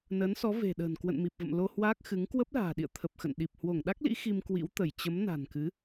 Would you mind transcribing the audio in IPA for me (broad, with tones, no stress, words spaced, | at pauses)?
nəː˨˦nsɔ˨˦ ve̤˨˩ɗə̤ː˨˩n kwə̰˧˨nmi˨˩p̚və̰˧˨m lo˧hwaː˦˥k̚ xɨ˨˦ŋ kwə˦˥p̚la̤ː˨˩ɗḭ˧˨ə̯ t̪ʰə˨˩p̚xə̰˧˨n ɗi˨˩p̚ hwo˧˩ŋɗa˦˥k̚lḭ˧˥ xi˧mkwḭ˧˥w t̪ə˧˩j t͡ɕə˨˦m na̤˨˩nkɨ˨˦